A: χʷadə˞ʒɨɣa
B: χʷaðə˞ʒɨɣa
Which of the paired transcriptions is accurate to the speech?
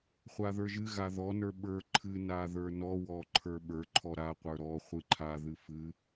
B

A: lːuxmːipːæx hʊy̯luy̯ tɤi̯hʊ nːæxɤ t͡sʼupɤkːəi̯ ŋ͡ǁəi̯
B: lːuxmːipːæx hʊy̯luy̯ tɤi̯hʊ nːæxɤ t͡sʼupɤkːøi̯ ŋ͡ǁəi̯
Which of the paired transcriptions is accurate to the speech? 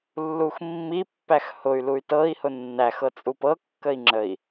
A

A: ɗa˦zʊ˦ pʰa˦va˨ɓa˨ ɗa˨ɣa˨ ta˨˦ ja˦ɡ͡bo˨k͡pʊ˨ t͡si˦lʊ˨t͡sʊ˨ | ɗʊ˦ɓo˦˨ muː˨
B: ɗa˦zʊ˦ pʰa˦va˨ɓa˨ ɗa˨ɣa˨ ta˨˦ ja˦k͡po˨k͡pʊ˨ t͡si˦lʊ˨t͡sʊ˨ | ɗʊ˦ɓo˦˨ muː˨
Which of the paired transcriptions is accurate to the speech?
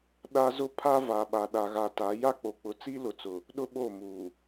B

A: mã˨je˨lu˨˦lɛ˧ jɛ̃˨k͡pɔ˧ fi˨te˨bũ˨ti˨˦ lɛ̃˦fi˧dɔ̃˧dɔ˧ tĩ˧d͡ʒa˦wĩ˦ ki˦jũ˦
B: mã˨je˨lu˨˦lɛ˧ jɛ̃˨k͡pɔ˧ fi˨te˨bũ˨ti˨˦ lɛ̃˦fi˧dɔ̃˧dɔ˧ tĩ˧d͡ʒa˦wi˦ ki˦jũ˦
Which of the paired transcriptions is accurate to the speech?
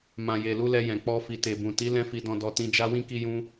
A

